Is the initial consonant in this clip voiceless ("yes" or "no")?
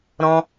no